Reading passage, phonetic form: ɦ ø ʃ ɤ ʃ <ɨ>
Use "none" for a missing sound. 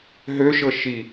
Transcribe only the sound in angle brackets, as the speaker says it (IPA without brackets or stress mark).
i